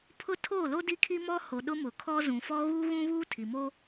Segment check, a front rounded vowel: absent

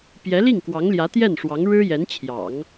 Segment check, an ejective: absent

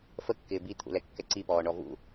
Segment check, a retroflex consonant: present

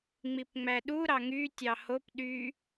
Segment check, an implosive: present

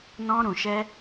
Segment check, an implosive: absent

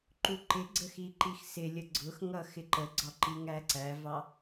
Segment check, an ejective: absent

